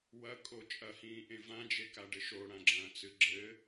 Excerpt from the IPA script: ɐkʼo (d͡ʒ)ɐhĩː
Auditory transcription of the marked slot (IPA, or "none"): t͡ʃʼ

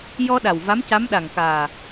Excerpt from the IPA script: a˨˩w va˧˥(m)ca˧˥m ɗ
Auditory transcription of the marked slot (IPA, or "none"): m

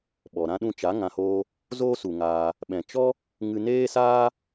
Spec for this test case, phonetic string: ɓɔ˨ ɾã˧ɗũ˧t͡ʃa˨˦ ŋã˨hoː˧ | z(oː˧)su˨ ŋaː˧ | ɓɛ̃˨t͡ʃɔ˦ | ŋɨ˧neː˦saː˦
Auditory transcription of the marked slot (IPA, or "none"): oː˦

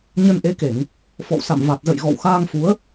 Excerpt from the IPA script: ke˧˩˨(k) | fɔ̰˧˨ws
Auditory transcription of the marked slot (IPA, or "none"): ŋ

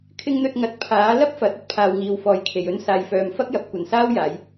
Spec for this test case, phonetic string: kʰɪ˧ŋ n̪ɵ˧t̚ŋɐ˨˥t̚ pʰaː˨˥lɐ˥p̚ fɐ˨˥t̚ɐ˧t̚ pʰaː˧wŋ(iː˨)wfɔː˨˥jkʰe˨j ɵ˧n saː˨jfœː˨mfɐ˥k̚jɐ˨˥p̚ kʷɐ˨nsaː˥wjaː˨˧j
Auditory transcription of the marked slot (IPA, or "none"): iː˨˧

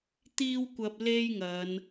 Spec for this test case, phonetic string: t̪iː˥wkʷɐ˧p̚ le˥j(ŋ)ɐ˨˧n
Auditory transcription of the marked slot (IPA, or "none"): ŋ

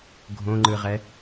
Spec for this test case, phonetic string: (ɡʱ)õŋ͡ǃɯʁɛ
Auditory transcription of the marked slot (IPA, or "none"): ɡʱ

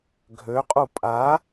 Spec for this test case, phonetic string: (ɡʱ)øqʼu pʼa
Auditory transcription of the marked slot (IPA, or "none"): ɡʱ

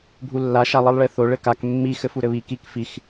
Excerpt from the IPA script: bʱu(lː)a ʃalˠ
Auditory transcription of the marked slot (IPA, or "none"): lː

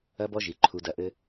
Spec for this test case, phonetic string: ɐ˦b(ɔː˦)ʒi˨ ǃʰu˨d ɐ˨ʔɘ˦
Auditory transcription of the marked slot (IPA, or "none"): ɔ˦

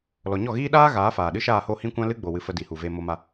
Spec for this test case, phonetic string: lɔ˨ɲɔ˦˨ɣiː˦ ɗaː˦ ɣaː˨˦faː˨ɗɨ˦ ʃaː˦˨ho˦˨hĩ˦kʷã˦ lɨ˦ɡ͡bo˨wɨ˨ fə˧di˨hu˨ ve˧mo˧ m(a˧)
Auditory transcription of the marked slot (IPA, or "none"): a˧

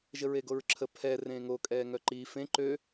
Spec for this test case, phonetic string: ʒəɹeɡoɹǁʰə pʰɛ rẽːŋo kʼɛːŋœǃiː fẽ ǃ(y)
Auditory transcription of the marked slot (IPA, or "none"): ø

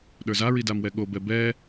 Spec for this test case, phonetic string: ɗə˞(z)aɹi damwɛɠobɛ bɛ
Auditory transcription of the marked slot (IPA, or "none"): z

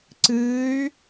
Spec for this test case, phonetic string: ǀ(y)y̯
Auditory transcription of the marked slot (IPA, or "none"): ɨ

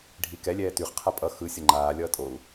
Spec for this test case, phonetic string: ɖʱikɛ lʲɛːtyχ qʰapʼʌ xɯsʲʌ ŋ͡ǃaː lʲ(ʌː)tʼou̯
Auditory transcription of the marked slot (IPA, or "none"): ʌː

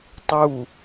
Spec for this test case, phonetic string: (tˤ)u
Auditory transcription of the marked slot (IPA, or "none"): tˤ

